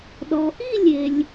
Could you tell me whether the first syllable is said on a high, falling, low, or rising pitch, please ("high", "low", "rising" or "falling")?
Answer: low